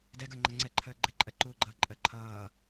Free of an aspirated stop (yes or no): no